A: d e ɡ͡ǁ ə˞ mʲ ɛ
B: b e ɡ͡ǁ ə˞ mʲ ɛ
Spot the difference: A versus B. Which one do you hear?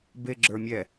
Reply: B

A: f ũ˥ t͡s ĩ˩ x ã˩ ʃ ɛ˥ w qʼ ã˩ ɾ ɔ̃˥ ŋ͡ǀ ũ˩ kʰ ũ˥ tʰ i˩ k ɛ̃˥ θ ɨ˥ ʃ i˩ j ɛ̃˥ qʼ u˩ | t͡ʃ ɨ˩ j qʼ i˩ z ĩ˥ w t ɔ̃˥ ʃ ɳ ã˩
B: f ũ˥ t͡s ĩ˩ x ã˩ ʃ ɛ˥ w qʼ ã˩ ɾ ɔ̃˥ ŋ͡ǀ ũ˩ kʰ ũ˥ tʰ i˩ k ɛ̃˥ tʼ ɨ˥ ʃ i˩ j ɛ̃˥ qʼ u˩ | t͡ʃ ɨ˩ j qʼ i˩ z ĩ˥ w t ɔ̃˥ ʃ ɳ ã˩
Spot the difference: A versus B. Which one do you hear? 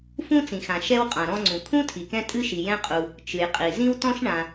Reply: B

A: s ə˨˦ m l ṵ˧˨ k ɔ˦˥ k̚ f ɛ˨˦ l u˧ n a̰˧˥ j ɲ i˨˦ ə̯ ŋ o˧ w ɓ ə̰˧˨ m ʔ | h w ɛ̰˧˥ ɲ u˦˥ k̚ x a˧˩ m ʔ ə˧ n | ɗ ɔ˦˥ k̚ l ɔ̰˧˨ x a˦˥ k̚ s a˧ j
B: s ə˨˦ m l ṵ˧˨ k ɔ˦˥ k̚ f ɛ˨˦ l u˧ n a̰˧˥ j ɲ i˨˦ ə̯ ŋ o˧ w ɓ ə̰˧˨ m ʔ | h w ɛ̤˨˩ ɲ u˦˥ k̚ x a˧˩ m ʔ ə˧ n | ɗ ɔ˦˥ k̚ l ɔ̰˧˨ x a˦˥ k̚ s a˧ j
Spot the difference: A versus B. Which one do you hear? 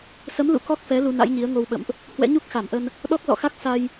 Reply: A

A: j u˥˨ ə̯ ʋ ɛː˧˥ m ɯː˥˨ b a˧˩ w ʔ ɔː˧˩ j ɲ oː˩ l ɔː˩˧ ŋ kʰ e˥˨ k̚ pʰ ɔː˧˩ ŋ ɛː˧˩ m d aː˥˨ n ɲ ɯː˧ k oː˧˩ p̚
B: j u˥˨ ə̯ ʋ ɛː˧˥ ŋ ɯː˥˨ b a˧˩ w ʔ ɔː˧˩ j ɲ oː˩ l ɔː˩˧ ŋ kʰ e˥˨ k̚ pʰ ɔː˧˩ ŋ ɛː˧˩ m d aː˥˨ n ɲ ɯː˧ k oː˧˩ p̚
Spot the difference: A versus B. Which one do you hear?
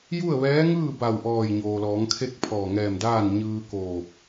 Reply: B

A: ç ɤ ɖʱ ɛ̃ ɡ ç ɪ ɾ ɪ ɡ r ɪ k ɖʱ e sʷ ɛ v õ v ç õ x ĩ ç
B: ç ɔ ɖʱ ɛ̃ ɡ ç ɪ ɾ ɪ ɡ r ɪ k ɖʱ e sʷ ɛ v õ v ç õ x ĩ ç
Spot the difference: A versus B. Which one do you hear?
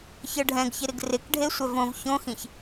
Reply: A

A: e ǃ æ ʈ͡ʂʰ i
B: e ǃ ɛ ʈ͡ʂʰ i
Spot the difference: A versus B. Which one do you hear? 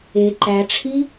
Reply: A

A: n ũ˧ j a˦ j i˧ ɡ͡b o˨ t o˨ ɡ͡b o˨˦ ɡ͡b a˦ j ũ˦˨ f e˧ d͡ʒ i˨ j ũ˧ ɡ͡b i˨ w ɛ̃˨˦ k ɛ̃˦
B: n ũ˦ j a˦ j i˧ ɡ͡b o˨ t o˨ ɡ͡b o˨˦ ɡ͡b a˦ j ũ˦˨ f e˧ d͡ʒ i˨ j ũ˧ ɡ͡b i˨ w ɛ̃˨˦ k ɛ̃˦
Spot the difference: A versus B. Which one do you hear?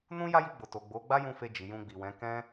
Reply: B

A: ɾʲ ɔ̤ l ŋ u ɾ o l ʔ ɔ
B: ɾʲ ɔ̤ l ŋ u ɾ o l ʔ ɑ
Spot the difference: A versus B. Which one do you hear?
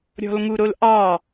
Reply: B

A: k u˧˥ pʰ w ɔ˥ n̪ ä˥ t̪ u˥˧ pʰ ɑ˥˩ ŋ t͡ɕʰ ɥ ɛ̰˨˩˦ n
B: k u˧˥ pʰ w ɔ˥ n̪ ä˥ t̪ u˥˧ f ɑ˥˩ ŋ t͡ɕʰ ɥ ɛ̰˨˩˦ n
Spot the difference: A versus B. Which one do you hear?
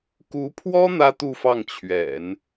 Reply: B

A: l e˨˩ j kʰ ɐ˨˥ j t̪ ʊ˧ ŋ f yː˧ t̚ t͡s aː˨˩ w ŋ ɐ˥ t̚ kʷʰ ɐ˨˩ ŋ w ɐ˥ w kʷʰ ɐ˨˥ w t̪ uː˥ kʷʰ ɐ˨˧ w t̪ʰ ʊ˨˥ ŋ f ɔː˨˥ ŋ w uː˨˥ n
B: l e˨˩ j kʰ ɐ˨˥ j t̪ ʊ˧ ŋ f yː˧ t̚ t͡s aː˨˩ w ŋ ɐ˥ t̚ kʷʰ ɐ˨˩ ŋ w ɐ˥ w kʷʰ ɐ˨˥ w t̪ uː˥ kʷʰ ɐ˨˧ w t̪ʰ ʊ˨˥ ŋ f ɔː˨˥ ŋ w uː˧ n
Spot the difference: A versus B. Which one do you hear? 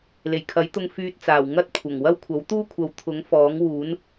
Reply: A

